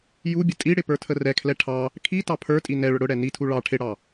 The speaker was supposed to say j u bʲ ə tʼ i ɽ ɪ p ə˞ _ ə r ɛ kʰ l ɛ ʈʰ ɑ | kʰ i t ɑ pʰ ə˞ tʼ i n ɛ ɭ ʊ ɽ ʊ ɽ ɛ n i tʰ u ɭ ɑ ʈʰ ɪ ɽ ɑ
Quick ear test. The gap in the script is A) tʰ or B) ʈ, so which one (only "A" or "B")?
A